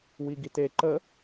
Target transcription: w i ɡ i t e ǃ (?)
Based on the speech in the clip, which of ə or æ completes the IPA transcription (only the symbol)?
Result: ə